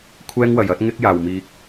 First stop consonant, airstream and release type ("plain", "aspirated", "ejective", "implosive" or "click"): aspirated